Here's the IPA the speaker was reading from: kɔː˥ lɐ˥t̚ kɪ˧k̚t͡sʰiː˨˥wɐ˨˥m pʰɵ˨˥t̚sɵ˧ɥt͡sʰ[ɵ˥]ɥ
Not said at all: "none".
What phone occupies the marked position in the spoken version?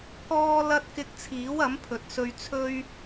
ɵ˥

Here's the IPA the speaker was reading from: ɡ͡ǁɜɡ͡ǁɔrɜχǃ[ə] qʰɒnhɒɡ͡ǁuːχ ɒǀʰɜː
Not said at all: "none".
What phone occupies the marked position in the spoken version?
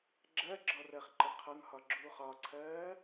ə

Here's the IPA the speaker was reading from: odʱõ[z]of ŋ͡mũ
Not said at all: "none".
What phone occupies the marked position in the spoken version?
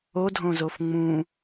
z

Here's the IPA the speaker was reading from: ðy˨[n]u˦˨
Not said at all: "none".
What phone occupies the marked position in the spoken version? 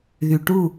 ʈ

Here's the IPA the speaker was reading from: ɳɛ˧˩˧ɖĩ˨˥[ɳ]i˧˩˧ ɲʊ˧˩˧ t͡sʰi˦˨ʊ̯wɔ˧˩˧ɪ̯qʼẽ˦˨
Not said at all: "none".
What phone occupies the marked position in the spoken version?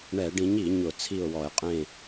ɲ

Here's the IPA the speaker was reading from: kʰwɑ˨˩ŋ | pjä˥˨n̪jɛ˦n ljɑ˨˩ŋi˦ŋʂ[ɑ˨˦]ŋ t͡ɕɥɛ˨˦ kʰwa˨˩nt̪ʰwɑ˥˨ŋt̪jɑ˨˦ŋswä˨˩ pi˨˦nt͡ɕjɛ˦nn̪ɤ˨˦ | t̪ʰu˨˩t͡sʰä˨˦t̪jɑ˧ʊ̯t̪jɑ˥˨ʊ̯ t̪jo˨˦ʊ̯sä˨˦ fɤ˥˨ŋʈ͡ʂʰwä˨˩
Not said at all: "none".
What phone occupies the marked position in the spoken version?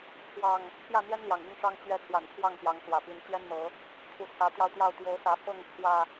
ɑ˦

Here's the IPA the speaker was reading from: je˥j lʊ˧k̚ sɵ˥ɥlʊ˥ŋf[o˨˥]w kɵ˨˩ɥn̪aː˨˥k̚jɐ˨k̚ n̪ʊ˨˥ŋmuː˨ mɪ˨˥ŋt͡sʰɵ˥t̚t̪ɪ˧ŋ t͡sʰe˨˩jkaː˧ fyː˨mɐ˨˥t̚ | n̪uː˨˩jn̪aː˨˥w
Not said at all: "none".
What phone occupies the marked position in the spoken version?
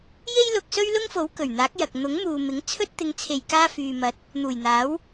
o˨˥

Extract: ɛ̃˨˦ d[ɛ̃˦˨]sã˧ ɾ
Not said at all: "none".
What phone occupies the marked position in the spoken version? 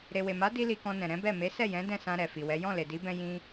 ɛ̃˦˨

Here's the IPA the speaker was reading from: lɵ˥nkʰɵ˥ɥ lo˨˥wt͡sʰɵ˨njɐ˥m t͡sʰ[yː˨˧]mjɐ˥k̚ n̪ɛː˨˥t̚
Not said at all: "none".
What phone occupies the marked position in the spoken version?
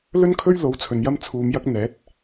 uː˨˧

